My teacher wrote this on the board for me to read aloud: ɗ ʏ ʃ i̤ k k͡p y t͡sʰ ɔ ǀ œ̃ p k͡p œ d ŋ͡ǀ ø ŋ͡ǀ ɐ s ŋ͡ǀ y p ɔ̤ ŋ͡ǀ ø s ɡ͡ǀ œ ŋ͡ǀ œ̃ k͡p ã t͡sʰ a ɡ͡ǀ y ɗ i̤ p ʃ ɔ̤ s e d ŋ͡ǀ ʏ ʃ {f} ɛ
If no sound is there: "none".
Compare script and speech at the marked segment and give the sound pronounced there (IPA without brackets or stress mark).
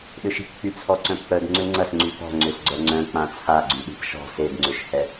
h